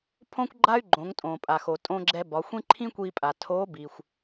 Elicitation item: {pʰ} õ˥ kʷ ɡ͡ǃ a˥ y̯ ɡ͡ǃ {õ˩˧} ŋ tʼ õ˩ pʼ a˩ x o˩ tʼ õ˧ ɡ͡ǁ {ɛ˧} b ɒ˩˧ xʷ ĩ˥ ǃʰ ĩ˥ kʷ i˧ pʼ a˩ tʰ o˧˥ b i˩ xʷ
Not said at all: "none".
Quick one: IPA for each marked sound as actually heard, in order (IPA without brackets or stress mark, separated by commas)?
pʰ, õ˩˧, ɛ˧